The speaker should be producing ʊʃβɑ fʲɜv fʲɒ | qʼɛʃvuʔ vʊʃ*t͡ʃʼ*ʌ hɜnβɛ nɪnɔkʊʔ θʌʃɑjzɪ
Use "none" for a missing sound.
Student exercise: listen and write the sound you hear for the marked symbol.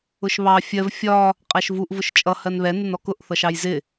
t͡ʃʼ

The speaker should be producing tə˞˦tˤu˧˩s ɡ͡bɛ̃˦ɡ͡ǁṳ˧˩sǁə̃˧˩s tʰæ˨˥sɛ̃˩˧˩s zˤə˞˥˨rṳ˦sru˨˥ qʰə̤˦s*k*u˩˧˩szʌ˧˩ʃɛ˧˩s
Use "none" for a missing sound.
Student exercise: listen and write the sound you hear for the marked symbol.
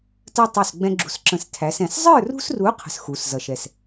x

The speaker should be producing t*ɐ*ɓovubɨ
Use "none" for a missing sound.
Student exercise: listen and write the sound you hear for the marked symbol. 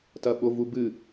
ɐ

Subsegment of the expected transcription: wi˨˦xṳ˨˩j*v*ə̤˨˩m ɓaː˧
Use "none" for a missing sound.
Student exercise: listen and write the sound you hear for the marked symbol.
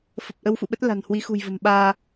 v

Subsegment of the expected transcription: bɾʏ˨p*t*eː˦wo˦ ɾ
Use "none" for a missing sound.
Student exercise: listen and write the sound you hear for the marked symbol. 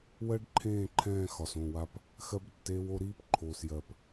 t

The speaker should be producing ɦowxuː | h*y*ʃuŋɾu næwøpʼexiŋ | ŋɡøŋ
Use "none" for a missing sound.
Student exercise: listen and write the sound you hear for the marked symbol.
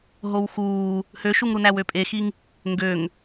ø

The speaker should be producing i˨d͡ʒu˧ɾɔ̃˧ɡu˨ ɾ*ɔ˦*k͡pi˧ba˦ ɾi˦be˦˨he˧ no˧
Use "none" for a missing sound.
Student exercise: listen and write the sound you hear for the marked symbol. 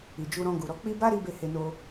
ɔ˨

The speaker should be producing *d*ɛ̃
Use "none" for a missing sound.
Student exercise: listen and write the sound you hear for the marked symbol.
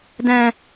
d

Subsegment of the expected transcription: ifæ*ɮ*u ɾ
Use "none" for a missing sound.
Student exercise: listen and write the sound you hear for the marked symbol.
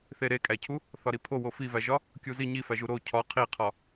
ʒ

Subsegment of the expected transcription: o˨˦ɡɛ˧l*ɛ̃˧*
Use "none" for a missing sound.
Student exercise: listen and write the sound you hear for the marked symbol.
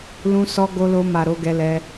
ɛ˧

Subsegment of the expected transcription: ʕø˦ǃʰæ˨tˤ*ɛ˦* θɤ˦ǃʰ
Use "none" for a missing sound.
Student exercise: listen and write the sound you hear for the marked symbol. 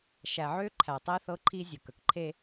e˦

